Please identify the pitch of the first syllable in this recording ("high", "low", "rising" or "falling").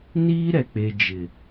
high